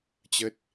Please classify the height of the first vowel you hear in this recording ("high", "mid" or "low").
mid